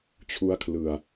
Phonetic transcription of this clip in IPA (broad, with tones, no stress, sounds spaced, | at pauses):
t͡ɕʰ u˦˥ a̯ kʰ l ɯ˨˩ a̯